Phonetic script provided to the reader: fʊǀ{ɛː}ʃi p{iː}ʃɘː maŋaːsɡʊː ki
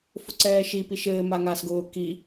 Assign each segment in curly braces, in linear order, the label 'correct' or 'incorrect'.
correct, incorrect

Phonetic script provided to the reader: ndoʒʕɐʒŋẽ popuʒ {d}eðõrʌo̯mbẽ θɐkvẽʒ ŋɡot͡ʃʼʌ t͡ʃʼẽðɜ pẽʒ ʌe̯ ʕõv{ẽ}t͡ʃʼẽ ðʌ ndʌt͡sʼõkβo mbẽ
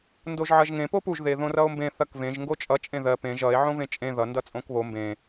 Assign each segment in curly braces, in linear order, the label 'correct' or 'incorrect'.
incorrect, correct

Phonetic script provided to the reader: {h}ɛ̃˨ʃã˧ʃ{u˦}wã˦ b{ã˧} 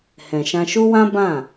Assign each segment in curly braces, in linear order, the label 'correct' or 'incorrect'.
correct, correct, incorrect

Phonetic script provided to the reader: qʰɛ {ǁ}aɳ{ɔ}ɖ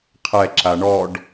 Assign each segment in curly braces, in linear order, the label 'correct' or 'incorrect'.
correct, correct

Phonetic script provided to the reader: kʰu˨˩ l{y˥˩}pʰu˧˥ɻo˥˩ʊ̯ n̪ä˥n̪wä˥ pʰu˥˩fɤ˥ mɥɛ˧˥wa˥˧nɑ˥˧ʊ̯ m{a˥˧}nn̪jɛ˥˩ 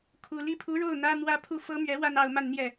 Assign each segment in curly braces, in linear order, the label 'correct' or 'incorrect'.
incorrect, correct

